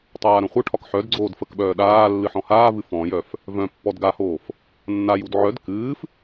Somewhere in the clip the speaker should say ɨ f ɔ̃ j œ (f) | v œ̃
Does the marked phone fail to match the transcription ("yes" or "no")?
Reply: no